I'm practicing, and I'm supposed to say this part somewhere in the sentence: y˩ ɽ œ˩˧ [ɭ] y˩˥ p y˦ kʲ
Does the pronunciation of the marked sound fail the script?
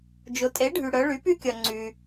no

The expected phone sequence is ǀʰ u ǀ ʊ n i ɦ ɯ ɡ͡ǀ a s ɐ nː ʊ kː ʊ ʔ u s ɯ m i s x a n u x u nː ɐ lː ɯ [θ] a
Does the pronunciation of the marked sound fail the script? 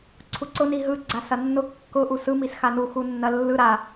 yes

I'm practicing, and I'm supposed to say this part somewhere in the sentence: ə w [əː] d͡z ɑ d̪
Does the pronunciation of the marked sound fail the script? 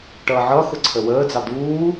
no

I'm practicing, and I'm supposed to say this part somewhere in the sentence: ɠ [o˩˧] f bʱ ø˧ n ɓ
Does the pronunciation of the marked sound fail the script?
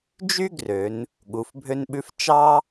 yes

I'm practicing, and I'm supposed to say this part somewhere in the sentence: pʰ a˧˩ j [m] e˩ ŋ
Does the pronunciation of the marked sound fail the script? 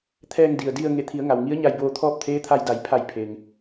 yes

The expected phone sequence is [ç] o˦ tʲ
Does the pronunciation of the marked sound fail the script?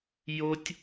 yes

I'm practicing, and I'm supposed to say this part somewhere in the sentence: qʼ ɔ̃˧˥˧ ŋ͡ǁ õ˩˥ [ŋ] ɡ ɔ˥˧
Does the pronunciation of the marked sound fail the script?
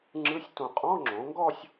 no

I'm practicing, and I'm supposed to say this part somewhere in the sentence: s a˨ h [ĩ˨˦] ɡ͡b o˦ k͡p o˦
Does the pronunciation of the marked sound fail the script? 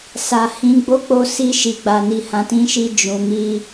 no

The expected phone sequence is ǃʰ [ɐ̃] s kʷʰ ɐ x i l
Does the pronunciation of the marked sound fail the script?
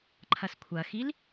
yes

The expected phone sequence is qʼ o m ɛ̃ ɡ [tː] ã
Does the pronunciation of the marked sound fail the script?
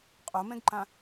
yes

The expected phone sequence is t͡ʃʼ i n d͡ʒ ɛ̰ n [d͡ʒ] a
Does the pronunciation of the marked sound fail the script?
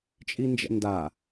yes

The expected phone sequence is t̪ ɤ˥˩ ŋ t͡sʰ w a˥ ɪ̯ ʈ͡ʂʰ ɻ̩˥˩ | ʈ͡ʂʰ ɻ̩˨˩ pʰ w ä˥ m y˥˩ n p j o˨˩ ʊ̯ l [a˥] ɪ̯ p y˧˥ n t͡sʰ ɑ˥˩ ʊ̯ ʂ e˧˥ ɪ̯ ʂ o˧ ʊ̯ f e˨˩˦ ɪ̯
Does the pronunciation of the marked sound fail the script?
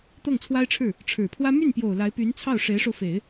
yes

